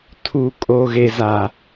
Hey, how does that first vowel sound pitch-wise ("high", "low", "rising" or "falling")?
low